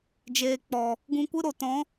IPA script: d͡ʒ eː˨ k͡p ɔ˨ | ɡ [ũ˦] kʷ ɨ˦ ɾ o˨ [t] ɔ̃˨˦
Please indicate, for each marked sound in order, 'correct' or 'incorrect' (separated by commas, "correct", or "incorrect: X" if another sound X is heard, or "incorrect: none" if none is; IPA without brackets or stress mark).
incorrect: ũ˧, correct